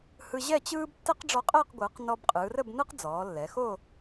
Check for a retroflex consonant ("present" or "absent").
present